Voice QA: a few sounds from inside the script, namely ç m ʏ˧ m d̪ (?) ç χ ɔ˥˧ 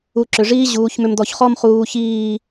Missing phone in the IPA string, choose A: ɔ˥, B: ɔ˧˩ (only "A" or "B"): B